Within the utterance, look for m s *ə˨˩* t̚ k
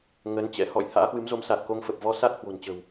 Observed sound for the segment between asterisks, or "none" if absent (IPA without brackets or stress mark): a˨˩